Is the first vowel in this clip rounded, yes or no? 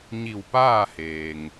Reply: no